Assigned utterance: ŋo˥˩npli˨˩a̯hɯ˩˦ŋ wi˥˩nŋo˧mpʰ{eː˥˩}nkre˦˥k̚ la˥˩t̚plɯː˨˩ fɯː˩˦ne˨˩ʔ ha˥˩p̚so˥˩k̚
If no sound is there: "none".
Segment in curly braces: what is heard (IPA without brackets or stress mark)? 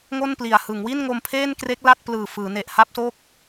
eː˥˩